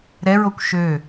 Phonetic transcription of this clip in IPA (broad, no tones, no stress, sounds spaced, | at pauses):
ɾ ɛ ɹ o kʷ ʃ ø